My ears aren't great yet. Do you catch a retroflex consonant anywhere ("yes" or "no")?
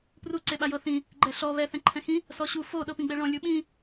yes